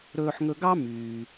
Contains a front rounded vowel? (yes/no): yes